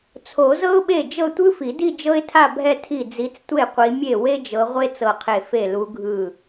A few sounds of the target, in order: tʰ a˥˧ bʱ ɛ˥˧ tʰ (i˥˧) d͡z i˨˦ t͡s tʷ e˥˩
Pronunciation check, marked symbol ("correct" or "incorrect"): incorrect